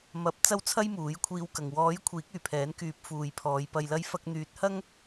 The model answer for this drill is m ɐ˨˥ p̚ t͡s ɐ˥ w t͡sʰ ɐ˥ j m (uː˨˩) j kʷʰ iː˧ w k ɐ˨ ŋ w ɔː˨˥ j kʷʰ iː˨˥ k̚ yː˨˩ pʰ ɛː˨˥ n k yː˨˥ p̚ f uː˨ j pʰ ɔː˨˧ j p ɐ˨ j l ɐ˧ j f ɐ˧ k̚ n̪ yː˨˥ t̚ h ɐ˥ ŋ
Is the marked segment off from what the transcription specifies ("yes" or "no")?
yes